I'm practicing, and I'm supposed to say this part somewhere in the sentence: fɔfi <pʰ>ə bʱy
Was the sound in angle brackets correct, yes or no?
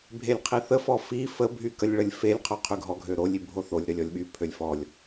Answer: no